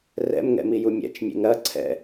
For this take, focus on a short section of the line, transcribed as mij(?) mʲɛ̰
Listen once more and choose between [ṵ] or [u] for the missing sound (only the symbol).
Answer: u